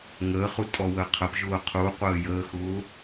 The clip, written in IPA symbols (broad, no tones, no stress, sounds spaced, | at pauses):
ŋ əː χ u tʼ ɔ w əː qʰ ə p ʒ ʊː qʰ u qʷ əː j əː x ʊː